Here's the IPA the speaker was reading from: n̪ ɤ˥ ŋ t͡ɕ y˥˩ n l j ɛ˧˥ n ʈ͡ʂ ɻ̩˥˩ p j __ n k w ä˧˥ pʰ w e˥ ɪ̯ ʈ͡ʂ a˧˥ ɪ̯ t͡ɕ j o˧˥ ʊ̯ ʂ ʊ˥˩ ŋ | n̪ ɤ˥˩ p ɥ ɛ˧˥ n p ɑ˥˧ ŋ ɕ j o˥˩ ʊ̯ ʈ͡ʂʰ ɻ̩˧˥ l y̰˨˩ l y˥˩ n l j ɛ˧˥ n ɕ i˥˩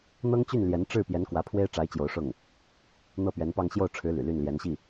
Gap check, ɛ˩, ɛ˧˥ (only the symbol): ɛ˧˥